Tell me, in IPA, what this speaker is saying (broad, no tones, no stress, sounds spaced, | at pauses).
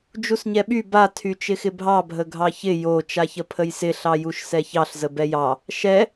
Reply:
d͡ʒ u s ɲ ɛ ɓ y b a tʰ y t͡ʃ ɪ x ɪ bʱ ɑ bʱ ə ɡʱ ɑ ç ɪ j o t͡ʃ a ç ə pʰ ə j s ɪ ɬ ɑ j u ʃ s ɛ ç ɑ ɬ z ə b ɛ j ɑ | ʃ ɛ